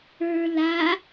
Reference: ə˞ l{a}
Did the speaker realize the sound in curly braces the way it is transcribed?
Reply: yes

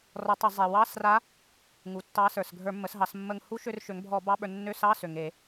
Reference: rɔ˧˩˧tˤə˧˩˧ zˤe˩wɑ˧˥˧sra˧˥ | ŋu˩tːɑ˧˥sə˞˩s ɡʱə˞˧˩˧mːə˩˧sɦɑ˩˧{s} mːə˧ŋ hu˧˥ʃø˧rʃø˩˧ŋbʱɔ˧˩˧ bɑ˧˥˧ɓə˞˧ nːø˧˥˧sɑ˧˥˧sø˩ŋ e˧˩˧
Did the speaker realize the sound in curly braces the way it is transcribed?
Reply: yes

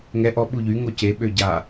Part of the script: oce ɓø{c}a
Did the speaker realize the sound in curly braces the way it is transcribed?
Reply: no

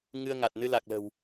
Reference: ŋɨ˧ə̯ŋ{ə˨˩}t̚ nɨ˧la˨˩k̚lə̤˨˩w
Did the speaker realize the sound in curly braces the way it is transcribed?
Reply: no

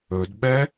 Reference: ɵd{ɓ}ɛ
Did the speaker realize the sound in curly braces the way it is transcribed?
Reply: yes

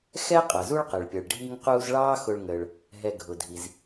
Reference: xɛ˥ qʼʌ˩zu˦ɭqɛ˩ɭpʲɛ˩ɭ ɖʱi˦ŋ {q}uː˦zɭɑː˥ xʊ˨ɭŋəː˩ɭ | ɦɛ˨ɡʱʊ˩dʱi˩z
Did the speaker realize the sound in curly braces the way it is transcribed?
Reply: yes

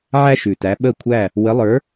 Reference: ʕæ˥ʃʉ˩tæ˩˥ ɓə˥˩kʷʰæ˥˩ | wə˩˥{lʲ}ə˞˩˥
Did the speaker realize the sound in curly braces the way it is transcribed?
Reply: no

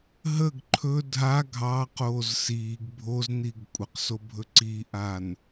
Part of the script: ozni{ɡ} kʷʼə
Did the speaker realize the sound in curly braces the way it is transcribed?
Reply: yes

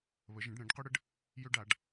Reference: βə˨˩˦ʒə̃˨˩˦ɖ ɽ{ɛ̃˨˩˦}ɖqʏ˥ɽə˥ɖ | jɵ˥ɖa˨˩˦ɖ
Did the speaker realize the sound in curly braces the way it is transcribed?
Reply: yes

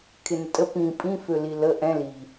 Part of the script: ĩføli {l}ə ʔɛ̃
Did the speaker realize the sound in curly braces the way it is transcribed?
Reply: yes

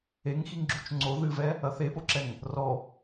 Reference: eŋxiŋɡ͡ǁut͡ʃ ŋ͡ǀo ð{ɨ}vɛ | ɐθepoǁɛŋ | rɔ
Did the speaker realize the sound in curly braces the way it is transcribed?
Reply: yes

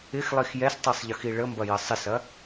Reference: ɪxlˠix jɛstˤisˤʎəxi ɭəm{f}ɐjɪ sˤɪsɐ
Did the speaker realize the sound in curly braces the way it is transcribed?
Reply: no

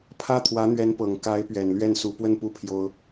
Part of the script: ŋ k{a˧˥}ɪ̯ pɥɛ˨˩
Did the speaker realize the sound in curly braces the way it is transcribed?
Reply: yes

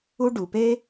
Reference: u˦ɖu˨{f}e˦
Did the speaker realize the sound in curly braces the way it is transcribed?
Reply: no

